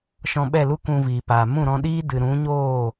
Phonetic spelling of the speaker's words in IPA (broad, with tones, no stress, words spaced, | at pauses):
ʃɔ̃˧ɓɛ˦˨lu˦ kũ˧viː˨paː˨ mũ˦˨ɾɔ̃˧ɗiː˦ dɨ˨ɾũ˨˦ɲoː˦˨